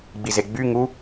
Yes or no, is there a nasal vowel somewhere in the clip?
no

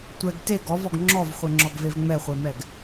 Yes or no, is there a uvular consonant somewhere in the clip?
yes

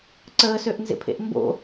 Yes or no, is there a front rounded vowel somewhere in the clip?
yes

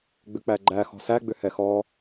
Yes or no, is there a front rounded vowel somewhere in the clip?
yes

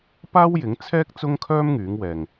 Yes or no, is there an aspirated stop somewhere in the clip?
yes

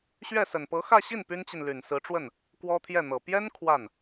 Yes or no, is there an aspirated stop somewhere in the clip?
yes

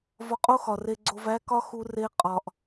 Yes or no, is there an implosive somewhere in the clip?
no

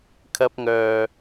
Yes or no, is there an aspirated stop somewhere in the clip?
yes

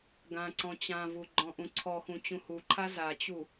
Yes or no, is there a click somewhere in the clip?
yes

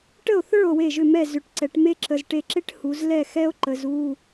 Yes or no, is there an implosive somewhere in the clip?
no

